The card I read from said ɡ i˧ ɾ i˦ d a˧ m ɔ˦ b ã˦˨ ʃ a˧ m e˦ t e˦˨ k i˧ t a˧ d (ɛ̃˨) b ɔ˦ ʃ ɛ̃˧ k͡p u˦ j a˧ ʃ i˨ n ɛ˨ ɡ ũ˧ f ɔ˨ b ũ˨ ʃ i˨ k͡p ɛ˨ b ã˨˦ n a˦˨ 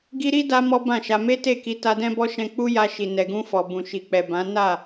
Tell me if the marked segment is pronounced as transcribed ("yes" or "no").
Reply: no